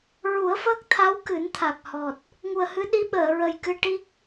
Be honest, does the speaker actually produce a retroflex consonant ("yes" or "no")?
yes